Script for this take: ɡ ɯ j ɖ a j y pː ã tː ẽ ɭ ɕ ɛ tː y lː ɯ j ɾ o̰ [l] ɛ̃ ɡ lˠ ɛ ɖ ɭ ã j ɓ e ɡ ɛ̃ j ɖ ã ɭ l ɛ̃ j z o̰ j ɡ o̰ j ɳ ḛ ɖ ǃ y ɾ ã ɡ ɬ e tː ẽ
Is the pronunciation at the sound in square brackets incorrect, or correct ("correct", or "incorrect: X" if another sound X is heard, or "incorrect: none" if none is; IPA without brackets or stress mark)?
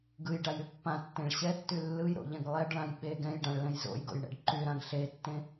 incorrect: ʎ